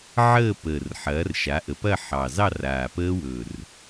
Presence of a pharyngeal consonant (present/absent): present